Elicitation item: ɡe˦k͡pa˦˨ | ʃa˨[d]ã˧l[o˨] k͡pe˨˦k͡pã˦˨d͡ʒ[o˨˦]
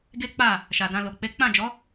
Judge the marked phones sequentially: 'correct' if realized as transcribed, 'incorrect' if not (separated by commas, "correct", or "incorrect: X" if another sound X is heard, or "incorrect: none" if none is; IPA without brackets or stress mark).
correct, correct, incorrect: ɔ˨˦